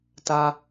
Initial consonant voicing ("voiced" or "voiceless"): voiceless